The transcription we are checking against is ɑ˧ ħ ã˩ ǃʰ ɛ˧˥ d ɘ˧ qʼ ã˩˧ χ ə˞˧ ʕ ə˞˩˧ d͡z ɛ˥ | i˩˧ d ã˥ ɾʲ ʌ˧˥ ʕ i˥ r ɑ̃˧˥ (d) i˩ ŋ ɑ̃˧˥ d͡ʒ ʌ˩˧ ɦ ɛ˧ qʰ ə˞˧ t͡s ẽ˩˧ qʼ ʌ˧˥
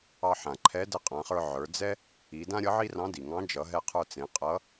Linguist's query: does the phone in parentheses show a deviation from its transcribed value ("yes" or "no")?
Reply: no